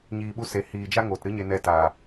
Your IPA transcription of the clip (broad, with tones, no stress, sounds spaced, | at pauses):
ɲ iː˨ ɓ u˧ s e˨ h iː˨ d͡ʒ a˦ ŋ oː˨ t ɾ ɨ˦ ɲ e˧ n ɛ˧ t aː˨